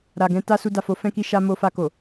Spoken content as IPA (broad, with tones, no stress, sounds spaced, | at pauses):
ɾ a˨ ɡ ɛ̃˧ t a˦ s u˧ d a˨ f o˨˦ f ɛ̃˦ k i˦ ʃ a˧ m o˧ f a˧ k o˨